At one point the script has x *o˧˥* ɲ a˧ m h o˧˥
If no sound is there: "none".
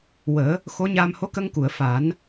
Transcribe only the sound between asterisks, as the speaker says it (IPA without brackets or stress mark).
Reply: o˧˥